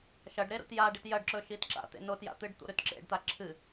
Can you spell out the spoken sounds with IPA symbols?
ʃ ɐ ɖ ɾ e ɾ ṵ t j a ɖ i t j ɐ ɖ ǁ ɵ ʃ i t ǁ a̰ t̪ ḛ n o t j a̰ t̪ ɨ ɖ t̪ ṵ ɾ ʉ t ǁ ḛ ɖ t̪ a ǁʰ ɨ

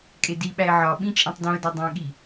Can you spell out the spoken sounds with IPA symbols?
kʼ e d i ɓ æ ɪ̯ ʕ ɒ ɓ ĩ t͡ʃʼ ẽ tˤ d õ ə̯ d ɒ dˤ ẽ ɠ i

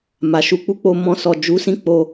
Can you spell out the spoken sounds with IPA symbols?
m a˨ ʃ u˧ k͡p u˦ k͡p o˧ m ɔ̃˧ s ɔ˨ d͡ʒ u˨˦ s ĩ˧ k͡p o˧

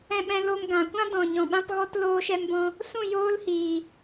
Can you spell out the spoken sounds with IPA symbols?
ɛ̃˧ ɓ ɛ̃˧ l o˧ m ɡ ã˨ kʷ ã˦ d ɔ̃˨ ɲ ɔ̃˨ ɓ ã˦ p ɣ ɔ˦ t l oː˦ ʃ ɛ˦ m b ɔ̃˦ | s ũ˦˨ j oː˦ l h iː˨

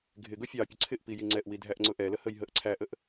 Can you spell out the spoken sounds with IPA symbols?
ɡʱ ɪ ɡ ʊ fʲ ɑ pʲ ʊ ǀʰ ɪ ʔ p i j i ŋ͡ǀ ɛ ʔ w i dʱ æ ʔ ŋ͡ǀ ʊ ʔ ɛ l ə h ə j ɦ ə ʔ ǀʰ æ ʔ ə ʔ

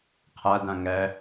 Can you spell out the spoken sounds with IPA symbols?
qʰ a d ã ŋ æ

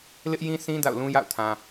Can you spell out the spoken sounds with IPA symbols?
l ɪ˦ ʔ j ĩ˦ sʰ ĩ˦ d a̰˦˨ ʊ̯ l ũ˦ j a̰˦˨ ʊ̯ tʰ ã˨

